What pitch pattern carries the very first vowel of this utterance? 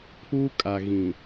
high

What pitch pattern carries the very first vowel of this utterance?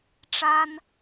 high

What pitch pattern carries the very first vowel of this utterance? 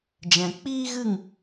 low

